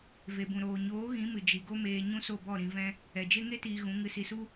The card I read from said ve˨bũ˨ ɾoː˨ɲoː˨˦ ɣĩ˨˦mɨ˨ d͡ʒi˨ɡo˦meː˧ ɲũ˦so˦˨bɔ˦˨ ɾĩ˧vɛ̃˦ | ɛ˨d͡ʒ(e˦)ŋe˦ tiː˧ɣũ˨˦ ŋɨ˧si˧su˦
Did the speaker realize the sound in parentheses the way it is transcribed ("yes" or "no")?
yes